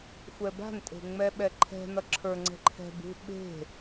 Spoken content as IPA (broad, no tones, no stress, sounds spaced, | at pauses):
xʷ ɛ b a̤ n tʼ e̤ ŋ͡m ɛ ɓ ɛ ǃʰ ɛ̤ n ʌ ǁʰ ə˞ ŋ͡ǀ ɛ̤ ǃʰ ɛ̤ b ṳ ɓ e̤